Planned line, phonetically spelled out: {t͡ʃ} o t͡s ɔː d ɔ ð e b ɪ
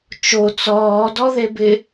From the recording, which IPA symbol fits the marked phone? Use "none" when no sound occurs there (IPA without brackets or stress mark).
t͡ʃ